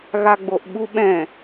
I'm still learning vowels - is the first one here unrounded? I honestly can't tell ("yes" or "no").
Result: yes